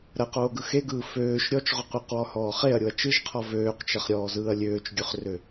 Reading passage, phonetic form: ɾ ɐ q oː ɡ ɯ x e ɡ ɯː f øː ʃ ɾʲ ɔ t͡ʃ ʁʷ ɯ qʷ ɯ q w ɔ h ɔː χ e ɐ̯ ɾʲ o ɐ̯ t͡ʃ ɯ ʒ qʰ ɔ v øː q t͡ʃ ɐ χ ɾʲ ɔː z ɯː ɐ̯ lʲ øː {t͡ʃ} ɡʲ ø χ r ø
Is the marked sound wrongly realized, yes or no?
no